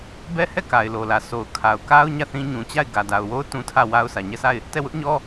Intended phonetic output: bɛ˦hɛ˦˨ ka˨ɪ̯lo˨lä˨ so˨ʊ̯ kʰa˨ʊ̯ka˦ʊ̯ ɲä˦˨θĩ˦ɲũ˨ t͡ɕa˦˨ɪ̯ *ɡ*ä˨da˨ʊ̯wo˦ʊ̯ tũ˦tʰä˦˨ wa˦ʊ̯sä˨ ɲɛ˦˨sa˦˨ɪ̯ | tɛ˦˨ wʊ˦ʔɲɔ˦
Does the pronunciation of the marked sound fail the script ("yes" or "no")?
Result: no